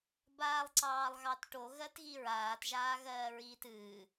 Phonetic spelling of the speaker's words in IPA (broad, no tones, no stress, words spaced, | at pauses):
baːlˠǀɑːlˠɣɑtʈo ɣɜtɣiɹaːt ʒaːɣɜːɹiːtɨː